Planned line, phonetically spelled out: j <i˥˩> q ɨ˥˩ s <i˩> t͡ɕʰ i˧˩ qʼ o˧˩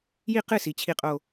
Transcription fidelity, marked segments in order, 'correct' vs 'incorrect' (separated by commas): correct, correct